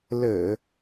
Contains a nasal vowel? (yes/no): no